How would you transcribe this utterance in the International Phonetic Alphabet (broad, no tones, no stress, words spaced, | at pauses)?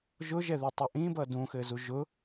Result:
ʒʊʒɛðetˤʊ ʔĩbʌ dũxɘzu ʒʊ